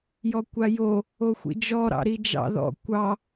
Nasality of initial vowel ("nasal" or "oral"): oral